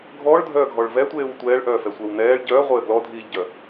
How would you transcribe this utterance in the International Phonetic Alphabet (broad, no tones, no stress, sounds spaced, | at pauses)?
ɡʱ ɔː ɭ dʱ œː ɡʱ ɔ ɭ v ɛ tʷ eː w tʷ ɛː ɭ ʔ œː f ɛ sʷ ɛ w n ɛː ɭ ɟ œː ʁʷ ɘː ɡ l ɔ dʱ iː ʎ ɟ œ